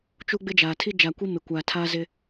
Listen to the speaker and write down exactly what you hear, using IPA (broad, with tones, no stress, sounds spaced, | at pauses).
t͡ʃ u˦ ɡ͡b ɪ˦ d͡ʒ a˨ tʰ i˦ d͡ʒ a˨ kʷ i˦ m ɪ˨ kʷ a˨ tʰ a˦ z ɪ˦